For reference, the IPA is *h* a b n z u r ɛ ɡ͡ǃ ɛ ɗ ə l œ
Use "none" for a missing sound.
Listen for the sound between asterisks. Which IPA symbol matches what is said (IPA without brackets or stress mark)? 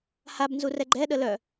h